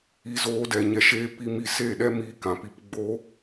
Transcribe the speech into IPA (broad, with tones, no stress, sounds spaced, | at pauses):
i˧ z oː˧ d ɛ˨ ɲ ɛ˧ ʃ eː˦ p i˧ m i˦˨ s e˦˨ ɗ ɛ˦ m iː˦ k ã˨ p i˧ p ɡ͡b o˦